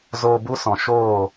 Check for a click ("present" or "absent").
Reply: absent